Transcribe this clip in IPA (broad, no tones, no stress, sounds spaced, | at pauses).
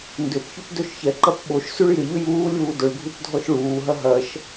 n d ʏ p ç ʏ p d ø ʃ ç ɛ ǃ ɐ p ɓ o ʃ s y ɭ j ɪ ʎ ʏ j uː lʲ uː d ʊ ɭ ɡʱ u p dʱ ɔ ʃ ɭ uː ɦ ɐ ɦ ɐ ʃ